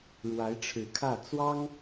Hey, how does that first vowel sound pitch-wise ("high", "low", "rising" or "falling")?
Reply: rising